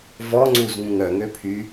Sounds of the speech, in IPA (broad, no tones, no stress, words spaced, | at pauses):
vɔŋ͡ǀuz ŋũŋœŋøpʰy